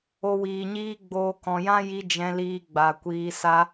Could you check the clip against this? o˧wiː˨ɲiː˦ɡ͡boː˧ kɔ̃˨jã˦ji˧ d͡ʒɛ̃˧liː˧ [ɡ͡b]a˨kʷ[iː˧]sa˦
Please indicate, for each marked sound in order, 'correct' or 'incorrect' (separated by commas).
correct, correct